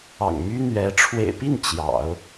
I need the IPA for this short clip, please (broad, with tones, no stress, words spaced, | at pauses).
ɑ̰˨˩ŋmy˥n̪ɥɛ˧˥ ʈ͡ʂʰwḛ˨˩ɪ̯pi˥˩n t͡ɕjɑ̰˨˩˦ʊ̯